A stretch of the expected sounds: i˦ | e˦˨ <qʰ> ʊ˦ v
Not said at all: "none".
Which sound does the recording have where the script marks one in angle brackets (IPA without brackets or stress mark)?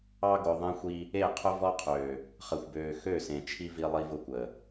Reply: qʰ